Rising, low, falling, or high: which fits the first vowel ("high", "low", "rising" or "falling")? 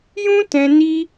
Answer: high